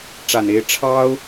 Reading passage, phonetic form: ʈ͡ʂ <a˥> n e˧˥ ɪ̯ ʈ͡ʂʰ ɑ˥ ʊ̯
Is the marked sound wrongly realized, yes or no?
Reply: yes